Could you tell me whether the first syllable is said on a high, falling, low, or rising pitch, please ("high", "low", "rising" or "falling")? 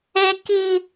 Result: high